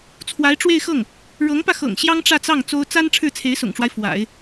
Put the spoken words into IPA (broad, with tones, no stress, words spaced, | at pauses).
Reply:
t͡sʰwa˧˥ɪ̯ʈ͡ʂwe˥˧ɪ̯xɤ˥˩ŋ | ɻɤ˧˥ŋpä˧xɤ̰˨˩ŋ ɕjɑ˥ŋʈ͡ʂä˥˧t͡sɑ˥˩ŋ t͡so˥ʊ̯ t͡sa˥n ʈ͡ʂʰɻ̩˥˩t͡sʰe˧˥ɪ̯sʊ̰˨˩ŋʈ͡ʂwa˦ɪ̯ fwa̰˨˩˦ɪ̯